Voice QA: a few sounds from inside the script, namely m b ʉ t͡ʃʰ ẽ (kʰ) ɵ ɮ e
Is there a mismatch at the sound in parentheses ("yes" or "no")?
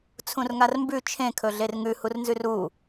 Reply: no